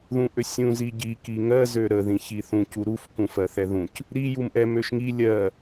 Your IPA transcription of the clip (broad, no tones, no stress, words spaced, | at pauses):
ðũʔøsʲũ ziɟi kiŋɜ zøɾə ðĩçiθũ cuɾuf kũfɜθɛðũc | ɾi jumʔɛ møʃŋi lʲɜ